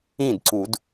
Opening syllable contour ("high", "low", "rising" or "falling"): falling